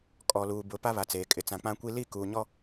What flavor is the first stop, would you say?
ejective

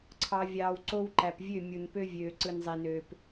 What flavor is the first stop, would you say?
click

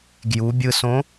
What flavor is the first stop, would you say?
plain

